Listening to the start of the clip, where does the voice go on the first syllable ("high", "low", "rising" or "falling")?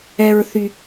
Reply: low